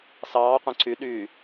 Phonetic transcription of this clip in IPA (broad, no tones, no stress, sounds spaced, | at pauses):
s ɑː qʷ ẽ ǀ y ɗ yː